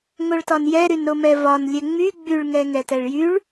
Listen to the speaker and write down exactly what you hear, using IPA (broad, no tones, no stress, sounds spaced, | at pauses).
ŋ o ɭ t ɒ n j ɛ ɾ y n ɾ o m ɛ v ɒ n lʲ ɛ ŋ͡m y ɡ͡b y ɭ ŋ ɛ ŋ ɛ t ɛ ɭ j y ɭ